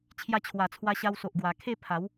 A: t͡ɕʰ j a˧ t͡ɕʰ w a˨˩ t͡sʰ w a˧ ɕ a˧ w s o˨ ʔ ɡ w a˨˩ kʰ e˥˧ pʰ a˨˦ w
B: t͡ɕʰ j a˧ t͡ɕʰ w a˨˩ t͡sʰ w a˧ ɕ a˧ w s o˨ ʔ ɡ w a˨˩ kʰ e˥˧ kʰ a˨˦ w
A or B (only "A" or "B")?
A